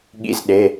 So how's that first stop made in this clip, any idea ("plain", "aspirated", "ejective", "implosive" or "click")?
implosive